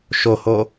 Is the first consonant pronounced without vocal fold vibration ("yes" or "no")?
yes